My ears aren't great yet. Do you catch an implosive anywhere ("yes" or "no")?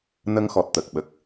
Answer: yes